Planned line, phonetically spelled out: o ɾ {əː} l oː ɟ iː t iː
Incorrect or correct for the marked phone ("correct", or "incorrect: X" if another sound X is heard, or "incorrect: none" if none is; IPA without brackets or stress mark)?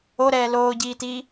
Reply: incorrect: ɛː